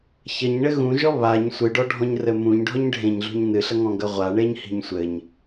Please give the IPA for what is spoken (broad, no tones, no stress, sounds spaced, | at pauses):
ç ɐ ɲ ɳ ɘ ɣ ũ ʒ ɔ β a ɲ sʷ ɨ ɖ ɔ ɖʱ ɔ̃ ɲ r ɘ m ũ ɲ ɖʱ ɔ ɲ ɖʱ ẽ ɲ ɮ ṳ ɲ n ɨ ɬ ɐ ŋ ɔ̃ ɡ ɐ ʁʷ a ɳ e ɲ h i̤ ɲ sʷ ɘ ɲ